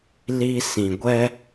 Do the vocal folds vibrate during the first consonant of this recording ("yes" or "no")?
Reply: yes